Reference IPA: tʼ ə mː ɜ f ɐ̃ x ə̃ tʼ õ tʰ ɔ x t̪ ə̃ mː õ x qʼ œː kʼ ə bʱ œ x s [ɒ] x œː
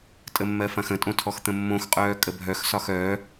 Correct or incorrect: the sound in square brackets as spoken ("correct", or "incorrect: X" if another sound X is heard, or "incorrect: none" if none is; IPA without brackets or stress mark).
correct